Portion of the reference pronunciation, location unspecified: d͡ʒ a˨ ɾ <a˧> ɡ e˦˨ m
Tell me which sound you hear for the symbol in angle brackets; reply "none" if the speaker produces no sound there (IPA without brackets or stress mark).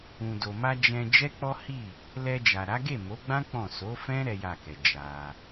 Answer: a˨˦